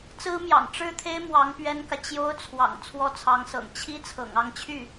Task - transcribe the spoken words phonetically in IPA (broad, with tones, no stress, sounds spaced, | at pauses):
t͡s ɹ̩˥ m j ɑ̰˨˩ ŋ ʈ͡ʂ ɻ̩˥˩ t̪ʰ e˥ ɪ̯ m w ɑ˧˥ ŋ p ɥ ɛ˥ n k ä˨ t͡ɕ j o˥ ʊ̯ t͡sʰ w ɑ̰˨˩ ŋ t͡sʰ w ɔ˥ t͡sʰ ɑ˧˥ ŋ s ɤ̰˨˩ ŋ t͡ɕʰ i˥ t͡sʰ ɤ̰˨˩ ŋ ɑ˥˧ ŋ t͡ɕʰ y˥˩